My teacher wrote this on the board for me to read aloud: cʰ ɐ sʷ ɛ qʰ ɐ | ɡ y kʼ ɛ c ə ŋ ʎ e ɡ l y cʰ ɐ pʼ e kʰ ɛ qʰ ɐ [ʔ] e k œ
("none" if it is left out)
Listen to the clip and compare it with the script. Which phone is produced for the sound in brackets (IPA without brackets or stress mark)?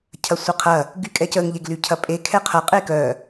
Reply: qʼ